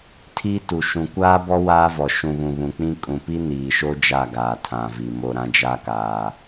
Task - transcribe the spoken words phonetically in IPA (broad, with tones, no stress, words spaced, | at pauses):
tʰiː˦tu˨ ʃũ˨kʷaː˦bɔ˦ waː˦vɔ˨ ʃũ˨βũ˨ βũ˨k͡pĩ˦ kʼũ˨pi˦ niː˨ʃo˦ d͡ʒa˦˨ɡaː˨ tʰã˨vi˨ mo˨ ɾã˦d͡ʒa˦kaː˨